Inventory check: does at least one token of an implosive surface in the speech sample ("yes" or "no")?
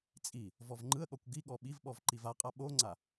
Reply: yes